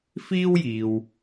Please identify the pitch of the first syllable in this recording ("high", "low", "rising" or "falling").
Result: high